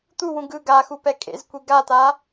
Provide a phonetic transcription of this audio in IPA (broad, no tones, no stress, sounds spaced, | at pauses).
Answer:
t̪ u w ũ ɡ ɯ ɡ a x u p ɛ kʼ ḛ z kʷ i ɡ a t̪ a